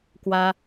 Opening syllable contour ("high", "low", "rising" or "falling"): high